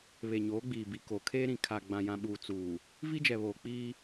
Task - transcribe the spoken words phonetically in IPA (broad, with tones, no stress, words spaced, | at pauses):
βe˨ɲoː˨˦ɡ͡biː˨bi˨ koː˨kʰeː˦ɾĩ˨ kʰa˨ ɡ͡bã˨jã˨ɓuː˨ t͡suː˨ | vi˦d͡ʒɛ˨βoː˨ k͡piː˦